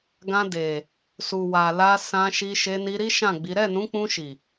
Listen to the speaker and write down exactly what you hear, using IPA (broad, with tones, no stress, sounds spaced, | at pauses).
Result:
ɡ ã˧ d e˨ | s u˨ w a˨ l a˧ s ã˧ ʃ i˧ ʃ e˧ n i˧ ɾ i˦ ʃ ã˦˨ ɡ͡b i˨˦ ɾ ɛ˦˨ n ũ˨˦ k͡p ũ˧ ʃ i˨